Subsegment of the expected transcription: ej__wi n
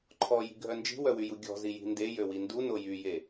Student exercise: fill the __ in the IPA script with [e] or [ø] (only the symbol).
ø